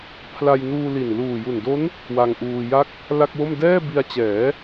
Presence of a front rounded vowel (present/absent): absent